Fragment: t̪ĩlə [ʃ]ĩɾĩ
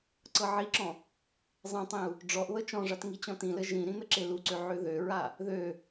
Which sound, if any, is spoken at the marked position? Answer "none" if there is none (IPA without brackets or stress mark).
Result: ʒ